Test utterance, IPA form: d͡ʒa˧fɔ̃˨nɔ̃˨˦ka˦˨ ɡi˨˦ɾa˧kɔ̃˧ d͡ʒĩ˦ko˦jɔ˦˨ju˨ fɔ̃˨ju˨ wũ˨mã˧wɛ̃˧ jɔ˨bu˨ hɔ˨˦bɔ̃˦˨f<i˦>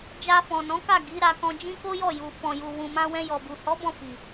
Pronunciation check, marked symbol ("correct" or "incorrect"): incorrect